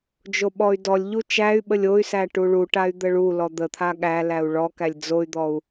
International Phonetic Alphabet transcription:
d͡ʒ o ɓ ɔ y̯ d ɔ lʲ ʎ u t͡ʃ æ y̯ ɓ ə lʲ o y̯ s æ ʈ u ɭ u ʈ a y̯ d̪ ə ɭ u l ɔ d̪ ə t̪ʰ a ɠ æ l æ u̯ ɭ ɔ k æ lʲ d͡z o y̯ d̪ ɔ u̯

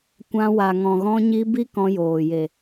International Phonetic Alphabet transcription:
kʷ ã˧ w a˨ ŋ ɔ̃˨ ɣ ɔ̃˧ ɲ i˧ b i˦ k ɔ̃˧ j oː˨ j e˨

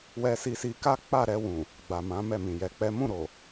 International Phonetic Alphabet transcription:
w ɛ˧ s i˧ s i˧ k a˦ k͡p a˦˨ ɾ ɛ˧ w ũ˨ | ɡ͡b a˨ m ã˨˦ m ɛ˦˨ m ĩ˨ j ɛ˨˦ k͡p ɛ˦ m ũ˦˨ ɾ o˨

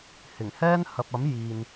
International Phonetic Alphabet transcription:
h ɪ˨˩ ŋ h ɛː˥ n h ɐ˨ p̚ ɐ˨˥ m j iː˨ n

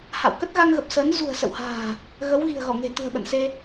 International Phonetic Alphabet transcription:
h a̰˧˨ w k ə˦˥ t̚ ɣ a˧ ŋ ɣ ə˨˩ p̚ s əː˨˦ n z ṳ˨˩ ə̯ s ə̰˧˨ w h a̤ː˨˩ | ɣ ə˨˦ w ɣ i̤˨˩ ə̯ ɣ ɔ˧˩ ŋ e̤˨˩ t̪ ṳ˨˩ ə̯ ɓ ə̰˧˨ n s e˧

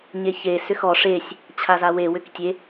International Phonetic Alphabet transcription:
ɲ e ç e s ʏ x ɔ ʂ e sʲ | t͡ɕʰ a z a w e w ʏ k tʲ e

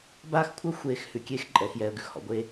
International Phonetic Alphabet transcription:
b aː˦ x kʷʰ ɜ˦ xʷ eː˨ x h ʉ˨ kʲ eː˦ x ǃʼ ɛ˨ x j ɛ˨ ə̯ ɡ ʉ˨ x h ɔ̰˨ ɡʷ eː˦

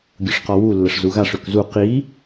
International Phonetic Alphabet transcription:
ɡʲ ʊ ʂ q ɔ w u lː ə ʂ z u ɣ a ʂ ø k z u q i

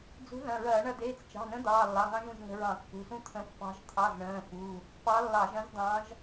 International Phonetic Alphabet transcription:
d͡z ṳ˧˥ ð ɐ̃˩˧˩ ɹ ɐː˧˩˧ ɳ ɐ˧ d̪ eː˩˧˩ t͡s t͡ʃ ɑ̤˩˧˩ n ə̃˧˥ d̪ ɑː˩˧˩ lː ɑ˩˧˩ ŋ ɑ̃˥ ʒ ũ˩˧˩ ʒ ŋ ə̤˧ ɹ ɑ̃˧˩˧ kː ṳ˩˧˩ s ũ˥ t̪ʰ ə̃˧˥ pː ɑ̤˧˥ ʒ t̪ʰ ɑ˩˧˩ z ɳ ə̃ː˩˧˩ f u˩˧˩ | p ɑ˧˥ lː ɑ˧˩˧ ʒ ɐ̃˧˥ z d̪ ɑ̃˧˥ ʒ

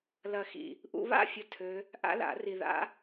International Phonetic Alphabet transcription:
l ɐ˧ x ḭ˧ | ʔ ṵ˧ β a̰˥˨ fʲ ə˥˨ tʰ ø˦˥ | ʔ a̰˦˥ l a̰˨˩˦ r i˧ ð a̰˦˥

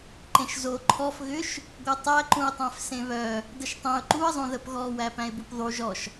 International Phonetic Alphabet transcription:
ǃ ẽ ʃ z o ǃʰ ɔ f ɣ ʏ ʃ | ɡʷ œ tˤ æ ǃ ũ ɪ̯ tˤ æ̃ f s ẽ β œ | d ə ʃ tˤ ẽ ʊ̯ ǃ u ə̯ zˤ õ ð ə p ɣ ɔ w æ p æ̃ ɪ̯ b u p ðˤ u ʒ ɔ ʃ

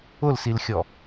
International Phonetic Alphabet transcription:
ʊ l s i l xʲ ɔ

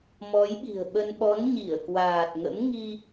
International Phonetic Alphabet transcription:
m ɔ˨˦ j ɓ i̤˨˩ ə̯ ɓ ə˧ n ɓ ɔ˨˦ n ɲ i˧˩ ə̯ k w aː˨˩ t̚ ŋ ə̰˧˥ m ŋ i˧

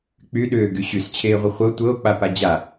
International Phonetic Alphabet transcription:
k͡p y ɗ ʏː ɡ y ɕ y s t͡ɕʰ eː ʁʷ ə χʷ ɤ tʷ ɤ o̯ k͡p a p a d͡ʑ a

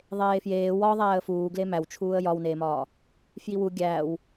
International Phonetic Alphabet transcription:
ðˤ eː f j eː w ɒ ðˤ æː ə̯ f uː ɡ l e m æ w t͡ʃʰ uː ə̯ j ɒ w n eː m ɒː | f j i w u ɡʲ æː w

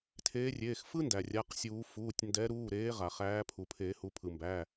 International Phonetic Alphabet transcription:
tʰ eː˨˦ rʲ eː˩˧˩ x f ɯ˥ n d æ˩ rʲ a˩˧˩ q sʲ uː˨˩˦ f uː˩˧˩ tʲ n d ɛ˨˦ ɾ uː˩˧˩ ɾ eː˨˦ ʁ a˩ χ æː˨˦ pʰ u˩ pʰ eː˨˩˦ h u˩˧˩ pʰ ɯ˩ m b æ˩˧˩

